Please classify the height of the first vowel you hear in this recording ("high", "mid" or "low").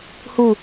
high